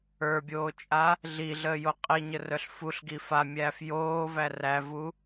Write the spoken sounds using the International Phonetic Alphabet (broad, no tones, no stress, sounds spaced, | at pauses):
ə˞ bʲ oː t͡ʃʼ a | ɮ i ɮ əː j o qʼ i ɲ ə r œ ɬ f u ɬ ɡ i f a mʲ æː f j oː v æ r æ v u